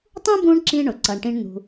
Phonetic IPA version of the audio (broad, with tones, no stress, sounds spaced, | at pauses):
tˤ ũ˥ b ũ˦ ɳ ǁ ĩ˥ ɳ ʊ˩ ǀ ʌ˨ ɳ ʈ ĩ˦ ɳ n̪ ṳ˨